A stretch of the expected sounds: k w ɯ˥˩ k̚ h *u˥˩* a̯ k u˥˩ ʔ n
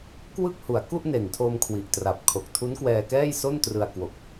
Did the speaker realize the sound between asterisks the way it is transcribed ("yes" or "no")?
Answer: no